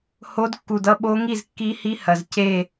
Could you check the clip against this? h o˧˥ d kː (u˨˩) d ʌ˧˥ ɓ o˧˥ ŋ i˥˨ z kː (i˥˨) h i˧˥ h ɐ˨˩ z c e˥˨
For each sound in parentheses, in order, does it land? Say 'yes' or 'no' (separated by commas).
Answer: yes, no